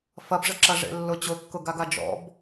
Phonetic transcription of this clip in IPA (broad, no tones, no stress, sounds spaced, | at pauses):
f ɐ b ʐ ə ǁ ɐ ʐ ḛ lː ʊ t͡ɕ ʊ kː ʊ ɡ a ɡ a d͡ʒ ɔ̰ b